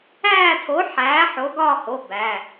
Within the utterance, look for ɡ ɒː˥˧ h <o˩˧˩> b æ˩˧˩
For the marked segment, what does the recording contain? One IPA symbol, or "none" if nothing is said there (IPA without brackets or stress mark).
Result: o˩˧˩